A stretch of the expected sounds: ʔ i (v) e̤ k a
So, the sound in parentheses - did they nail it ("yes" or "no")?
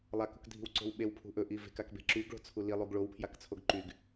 yes